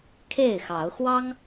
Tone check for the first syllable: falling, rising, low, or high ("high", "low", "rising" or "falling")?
falling